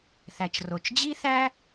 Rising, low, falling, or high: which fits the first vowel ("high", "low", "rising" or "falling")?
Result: low